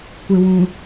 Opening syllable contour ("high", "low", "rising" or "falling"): low